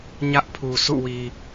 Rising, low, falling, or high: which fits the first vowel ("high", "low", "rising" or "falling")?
high